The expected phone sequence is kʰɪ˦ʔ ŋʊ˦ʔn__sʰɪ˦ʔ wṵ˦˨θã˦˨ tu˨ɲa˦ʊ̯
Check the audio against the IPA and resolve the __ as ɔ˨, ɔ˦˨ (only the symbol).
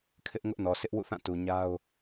ɔ˨